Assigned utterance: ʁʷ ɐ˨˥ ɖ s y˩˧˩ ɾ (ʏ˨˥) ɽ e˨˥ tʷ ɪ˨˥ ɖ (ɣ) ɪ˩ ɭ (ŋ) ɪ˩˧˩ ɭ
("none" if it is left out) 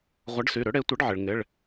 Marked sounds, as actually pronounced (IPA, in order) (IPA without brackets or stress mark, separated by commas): ʏ˨˥, ʕ, ŋ